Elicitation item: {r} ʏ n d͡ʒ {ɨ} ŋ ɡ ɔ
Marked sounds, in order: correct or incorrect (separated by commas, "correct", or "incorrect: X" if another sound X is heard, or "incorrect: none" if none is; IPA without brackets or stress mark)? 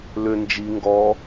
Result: incorrect: l, incorrect: i